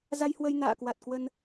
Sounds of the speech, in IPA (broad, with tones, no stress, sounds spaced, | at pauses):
z a˧ j h w ə˧ j n a̰ː˧˨ k w a˨˩ t̚ k w ə˧ n